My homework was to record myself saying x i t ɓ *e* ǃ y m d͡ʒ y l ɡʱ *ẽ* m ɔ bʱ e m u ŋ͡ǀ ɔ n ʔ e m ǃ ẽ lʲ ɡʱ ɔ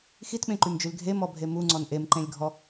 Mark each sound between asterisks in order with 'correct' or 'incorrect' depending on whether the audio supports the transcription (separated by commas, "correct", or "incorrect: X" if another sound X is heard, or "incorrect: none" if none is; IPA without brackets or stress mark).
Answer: incorrect: ẽ, incorrect: e